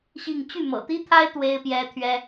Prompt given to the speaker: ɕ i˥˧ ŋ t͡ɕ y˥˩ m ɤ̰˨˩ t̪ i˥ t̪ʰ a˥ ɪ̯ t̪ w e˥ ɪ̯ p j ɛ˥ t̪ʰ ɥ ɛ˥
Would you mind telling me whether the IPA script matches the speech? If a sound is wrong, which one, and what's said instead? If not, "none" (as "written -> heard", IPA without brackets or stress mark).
none